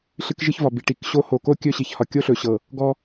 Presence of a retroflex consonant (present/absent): present